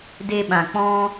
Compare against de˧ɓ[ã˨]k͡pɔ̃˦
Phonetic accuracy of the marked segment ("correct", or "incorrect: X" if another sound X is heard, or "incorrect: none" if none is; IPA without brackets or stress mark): correct